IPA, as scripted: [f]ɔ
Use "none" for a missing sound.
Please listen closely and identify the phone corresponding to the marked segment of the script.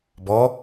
b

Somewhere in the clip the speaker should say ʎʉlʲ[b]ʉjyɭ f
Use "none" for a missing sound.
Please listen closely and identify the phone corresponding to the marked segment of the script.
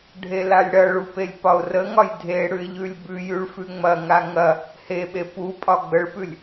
b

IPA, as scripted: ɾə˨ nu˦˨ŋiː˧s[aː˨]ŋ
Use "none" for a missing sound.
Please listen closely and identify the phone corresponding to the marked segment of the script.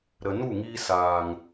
aː˨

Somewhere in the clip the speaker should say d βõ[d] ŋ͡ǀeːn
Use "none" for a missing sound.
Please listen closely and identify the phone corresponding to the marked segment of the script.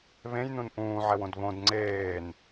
d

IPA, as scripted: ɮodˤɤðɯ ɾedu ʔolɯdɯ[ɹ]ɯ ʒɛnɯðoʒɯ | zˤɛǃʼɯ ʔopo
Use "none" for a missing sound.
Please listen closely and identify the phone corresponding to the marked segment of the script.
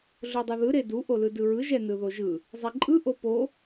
ɹ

